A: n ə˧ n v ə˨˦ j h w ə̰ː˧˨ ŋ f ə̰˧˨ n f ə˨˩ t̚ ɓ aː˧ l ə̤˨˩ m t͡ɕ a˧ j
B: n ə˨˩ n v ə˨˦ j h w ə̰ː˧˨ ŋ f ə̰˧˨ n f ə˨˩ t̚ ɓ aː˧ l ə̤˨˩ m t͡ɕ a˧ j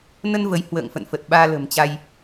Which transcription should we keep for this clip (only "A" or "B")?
A